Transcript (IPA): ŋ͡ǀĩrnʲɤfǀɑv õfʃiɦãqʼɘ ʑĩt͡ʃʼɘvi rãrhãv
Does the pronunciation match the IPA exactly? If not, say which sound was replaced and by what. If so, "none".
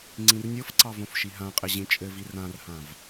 none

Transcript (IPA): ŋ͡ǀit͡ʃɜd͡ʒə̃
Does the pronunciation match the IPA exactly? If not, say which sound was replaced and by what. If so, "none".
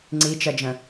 none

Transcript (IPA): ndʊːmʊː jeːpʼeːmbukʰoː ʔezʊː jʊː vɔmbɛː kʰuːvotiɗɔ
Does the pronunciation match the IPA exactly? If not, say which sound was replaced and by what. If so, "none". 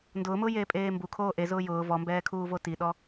none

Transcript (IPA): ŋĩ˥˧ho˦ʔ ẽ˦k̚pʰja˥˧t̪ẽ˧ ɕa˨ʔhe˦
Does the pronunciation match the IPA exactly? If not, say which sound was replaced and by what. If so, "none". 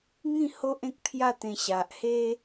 none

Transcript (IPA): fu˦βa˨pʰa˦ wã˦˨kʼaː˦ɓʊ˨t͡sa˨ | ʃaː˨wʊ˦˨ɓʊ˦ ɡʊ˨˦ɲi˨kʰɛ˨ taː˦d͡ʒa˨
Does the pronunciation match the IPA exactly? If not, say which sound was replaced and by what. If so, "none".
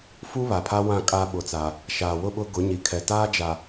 none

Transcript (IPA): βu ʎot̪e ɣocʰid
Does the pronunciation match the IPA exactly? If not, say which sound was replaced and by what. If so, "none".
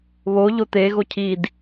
u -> o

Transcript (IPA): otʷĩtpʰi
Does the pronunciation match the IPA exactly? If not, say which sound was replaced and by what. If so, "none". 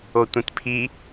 none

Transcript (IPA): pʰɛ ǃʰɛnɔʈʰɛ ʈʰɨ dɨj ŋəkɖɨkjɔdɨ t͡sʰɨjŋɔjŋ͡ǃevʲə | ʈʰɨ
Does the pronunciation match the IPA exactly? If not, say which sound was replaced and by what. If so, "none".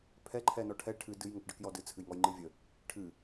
e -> ɨ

